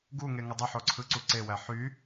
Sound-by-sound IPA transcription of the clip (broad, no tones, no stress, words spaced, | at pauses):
ɡuŋeŋə dˤəħoǀʰɯǀu ǀewæ ħy